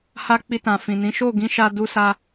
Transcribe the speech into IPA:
h a˧ k͡p i˧ t ã˨ f ĩ˨ n ĩ˨˦ ʃ o˦˨ ɡ ĩ˧ ʃ a˧ d u˧ s a˧

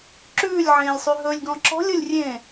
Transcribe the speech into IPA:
ǁ ʉː lʲ ʕ ẽː lʲ sˤ y ɦ ɵ lʲ ɡ ɔ̃ ǁ ɔ̤ lʲ o lʲ rʲ ẽː

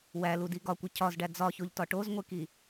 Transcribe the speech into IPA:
w æ l u d i ɡ ɒ kʷ e cʰ ɒ z ɖ æ d͡z ɒ ç o ʎ t ɒ ʈ o z ŋʷ e k i

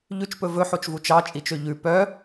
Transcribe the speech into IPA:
ʎ ʉ t͡ʃ p ɵ v ɵ ħ o t͡ʃ v u t͡ʃ ɑ t͡ʃʼ i t͡ʃ ø ʎ ʉ p œ

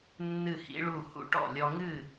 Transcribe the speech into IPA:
nː ɨ˧˩ h ḭ˧ ɭ u˧˩ h ṵ˥˩ ʈ ɔ̰˥˩ lʲ ɔ˧ ŋ ɨ˥˩

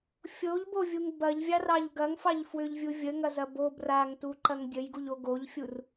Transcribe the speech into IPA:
fʲ o ʎ b o vʲ u ŋ b ɐ ʎ vʲ ɑ r ɑ ʎ ɡ ɐ ŋ f ɑ ʎ f w ʏ ʎ vʲ u vʲ ə ŋ ɐ z ɐ b o b r a ŋ t u ǃ ɐ ŋ dʲ ə j ɡ u ʎ o ɡ o ʎ fʲ u r

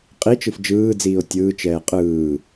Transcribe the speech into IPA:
qʼ i t͡ʃ ɯ f d͡ʒ ɯː d͡z iː o̯ tʲ ɯː t͡ʃ ɛː qʼ ɯː

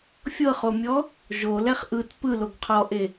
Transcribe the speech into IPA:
fʲ ɤ χ o mʲ ɔ | ʒ o l ɛ χ ʔ ɯ t p ɯ l o ɡ qʰ ɔ ʔ e

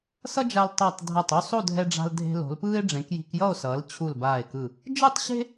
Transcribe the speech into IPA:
s ʌ˥ d͡ʒ a˧ l tˤ a˧˩ tˤ dʱ a˧˩ tˤ u˥˧ sˤ o˥˧ dʱ ɛ˧ ɖ͡ʐ a̤˧ l dʱ e̤˧ l o̤˩˧ l p ɯː˥ e̯ ɖ͡ʐ ẽ˩˧ k j i̤˧ k j ʌ˥˧ o̯ s ʌː˩˧ l t͡ɕʰ u˧˩ l b aː˧˩ e̯ k ɯ˧˩ | d͡ʒ ɯ˥˧ tˤ ɕ e̤˥

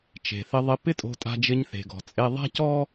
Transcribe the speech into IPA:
t͡ʃ e̤˩ θ ɪ˧ ðˤ ɪ˧ p ɪ˥ tʼ o̤˧ tʼ a̤˧ d͡ʒ ɪ˧ ɲ θ e̤˩ ɡ ɔ̤˩ t͡sʼ e˧ ðˤ a̤˥ c ɔ˥

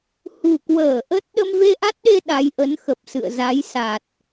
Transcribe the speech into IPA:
h ṳ˨˩ k w əː˧˩ ʔ ə˦˥ t̚ ɗ ə˧ m v e˧ ʔ a˦˥ t̚ ɗ e˧ ɗ a˨˦ j ʔ ə˨˦ n x ə˨˩ p̚ s ɨ̰˧˨ ə̯ z a˨˦ j s a˨˩ t̚

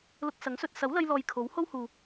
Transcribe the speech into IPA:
l ʊ˧ k̚ s ɐ˨˥ ŋ s ɵ˧ t̚ s ɐ˨˥ w l ɐ˧ j l ɔː˨ j kʰ o˨˥ w h o˥ w h uː˨

